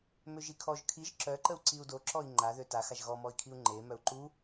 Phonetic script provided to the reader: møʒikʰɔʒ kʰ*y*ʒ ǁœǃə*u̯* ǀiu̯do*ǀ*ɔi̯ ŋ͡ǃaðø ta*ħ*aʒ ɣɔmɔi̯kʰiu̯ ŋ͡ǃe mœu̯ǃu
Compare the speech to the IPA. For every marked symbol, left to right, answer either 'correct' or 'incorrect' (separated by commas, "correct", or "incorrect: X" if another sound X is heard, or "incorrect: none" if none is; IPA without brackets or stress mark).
incorrect: i, correct, incorrect: ǁ, incorrect: x